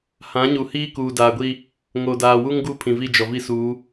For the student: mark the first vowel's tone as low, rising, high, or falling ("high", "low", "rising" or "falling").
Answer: rising